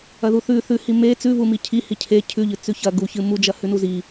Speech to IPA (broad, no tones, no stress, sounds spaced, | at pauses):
ɐ ð u θ ʉ θ ʉ h i m e t͡s ʉ v u m i cʰ i h i cʰ e cʰ ʉ ʎ ɨ t͡s ʉ ç ɐ ɡ u ç ɨ m u d͡ʒ ɐ h ʉ n u z i